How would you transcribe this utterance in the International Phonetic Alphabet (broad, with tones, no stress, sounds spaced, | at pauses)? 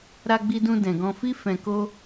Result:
ɾ a˧ ɡ͡b i˧ d ũ˧ d ɛ̃˨ ɡ ɔ̃˧ f i˦ f ɛ̃˧ k o˦